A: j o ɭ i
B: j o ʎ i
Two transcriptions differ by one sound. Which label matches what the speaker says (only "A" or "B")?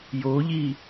B